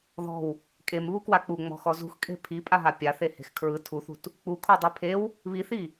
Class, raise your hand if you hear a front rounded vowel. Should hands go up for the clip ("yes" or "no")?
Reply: no